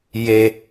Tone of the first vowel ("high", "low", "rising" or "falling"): low